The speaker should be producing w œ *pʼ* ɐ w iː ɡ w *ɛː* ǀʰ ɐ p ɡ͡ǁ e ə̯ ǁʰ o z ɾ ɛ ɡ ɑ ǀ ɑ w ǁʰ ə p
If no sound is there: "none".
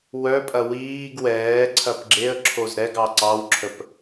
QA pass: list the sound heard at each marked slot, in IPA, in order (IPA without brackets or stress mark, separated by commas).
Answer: pʼ, ɛː